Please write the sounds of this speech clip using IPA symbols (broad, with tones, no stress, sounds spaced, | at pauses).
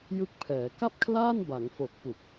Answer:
j ɯ˦˥ k̚ pʰ ɛː˩˦ k a˥˩ p̚ kʰ l aː˥˩ n b a˩˦ ŋ f o˨˩ k̚ p u˨˩ k̚